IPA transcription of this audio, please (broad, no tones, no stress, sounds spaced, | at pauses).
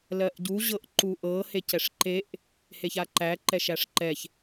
l ɜ ʔ ɟ u ʑ ɤ ʔ ǃ u ʔ ɤ h e c ɛ ʂ ǃ e ʔ | h e ç a ǃ æ ǃ ɛ ʃ æ ʂ ǃ ɛ ç